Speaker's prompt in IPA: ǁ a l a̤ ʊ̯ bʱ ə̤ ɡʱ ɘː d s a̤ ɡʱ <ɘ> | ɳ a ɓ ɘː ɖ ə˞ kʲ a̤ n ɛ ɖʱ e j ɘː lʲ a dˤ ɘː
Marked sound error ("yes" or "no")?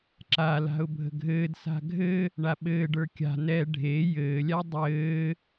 no